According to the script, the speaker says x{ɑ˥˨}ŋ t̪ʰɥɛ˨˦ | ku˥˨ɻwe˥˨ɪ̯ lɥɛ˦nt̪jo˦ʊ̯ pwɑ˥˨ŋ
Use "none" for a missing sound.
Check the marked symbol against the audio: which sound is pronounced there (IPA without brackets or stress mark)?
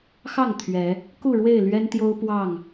ɑ˥˨